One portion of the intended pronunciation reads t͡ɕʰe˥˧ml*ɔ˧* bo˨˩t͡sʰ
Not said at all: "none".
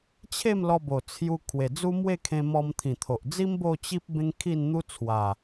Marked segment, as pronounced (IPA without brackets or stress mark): ɔ˧